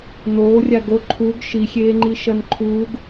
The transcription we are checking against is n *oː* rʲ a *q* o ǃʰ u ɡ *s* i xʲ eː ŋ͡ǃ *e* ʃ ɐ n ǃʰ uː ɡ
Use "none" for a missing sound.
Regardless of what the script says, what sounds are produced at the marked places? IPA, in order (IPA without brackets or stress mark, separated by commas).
oː, ɡ, ʃ, i